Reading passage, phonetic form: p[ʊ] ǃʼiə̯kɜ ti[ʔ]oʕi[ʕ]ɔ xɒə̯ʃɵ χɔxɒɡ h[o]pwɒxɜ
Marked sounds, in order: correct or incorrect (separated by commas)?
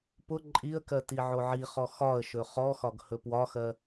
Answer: correct, incorrect, incorrect, incorrect